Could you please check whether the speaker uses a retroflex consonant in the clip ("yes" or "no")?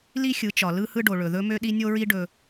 yes